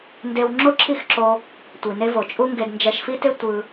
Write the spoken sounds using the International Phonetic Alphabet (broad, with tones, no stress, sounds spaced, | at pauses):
n d e˧ w ŋ͡ǁ o˦ ǁʰ i˦˨ x ǁ o˧ | tʷ i˨ n e˧ v o˨ t͡ʃʼ u˦ ŋ ɡ e˧ d n d͡ʒ ɛ˧ ʃ f i˦ t e˦ tʷ ɯ˧